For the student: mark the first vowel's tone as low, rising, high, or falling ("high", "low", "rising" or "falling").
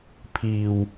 low